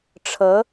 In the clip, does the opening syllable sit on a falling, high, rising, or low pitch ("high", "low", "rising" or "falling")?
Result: rising